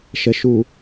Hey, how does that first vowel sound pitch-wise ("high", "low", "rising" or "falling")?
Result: low